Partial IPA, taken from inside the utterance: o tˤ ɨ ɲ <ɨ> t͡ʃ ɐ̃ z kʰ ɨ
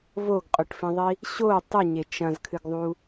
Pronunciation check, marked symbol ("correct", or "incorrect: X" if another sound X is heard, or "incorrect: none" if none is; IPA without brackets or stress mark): incorrect: e